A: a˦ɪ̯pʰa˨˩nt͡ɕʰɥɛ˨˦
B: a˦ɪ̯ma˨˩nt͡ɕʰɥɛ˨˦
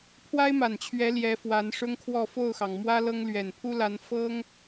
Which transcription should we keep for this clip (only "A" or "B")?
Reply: B